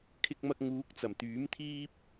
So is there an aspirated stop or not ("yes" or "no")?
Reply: yes